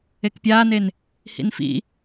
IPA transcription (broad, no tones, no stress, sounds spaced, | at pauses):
e k pʲ aː n e n | h ḭ n f ḭ